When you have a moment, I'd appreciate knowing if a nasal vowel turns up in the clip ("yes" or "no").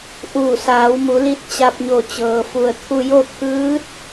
no